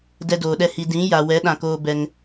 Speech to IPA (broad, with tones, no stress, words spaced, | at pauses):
dɛ˧doː˨ɗɛ˧ hi˧ dĩ˨˦ ja˨wɛ˨˦ ɗã˨koː˧ bɛ˧ŋ